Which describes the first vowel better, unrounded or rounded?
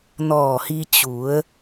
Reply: rounded